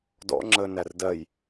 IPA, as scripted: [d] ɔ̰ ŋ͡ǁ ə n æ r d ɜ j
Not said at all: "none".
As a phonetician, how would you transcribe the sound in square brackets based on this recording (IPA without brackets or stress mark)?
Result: d